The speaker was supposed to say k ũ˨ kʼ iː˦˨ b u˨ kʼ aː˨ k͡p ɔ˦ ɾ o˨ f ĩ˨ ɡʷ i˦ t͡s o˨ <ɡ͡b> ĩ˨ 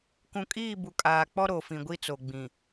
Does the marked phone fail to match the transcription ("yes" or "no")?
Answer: no